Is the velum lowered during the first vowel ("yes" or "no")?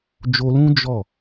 no